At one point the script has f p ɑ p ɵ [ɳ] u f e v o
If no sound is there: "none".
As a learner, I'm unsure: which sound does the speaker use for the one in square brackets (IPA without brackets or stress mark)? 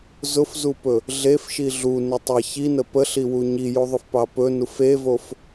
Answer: n